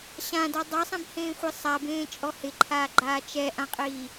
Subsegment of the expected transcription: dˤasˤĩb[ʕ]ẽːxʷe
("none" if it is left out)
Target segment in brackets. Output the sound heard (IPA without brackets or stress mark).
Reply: h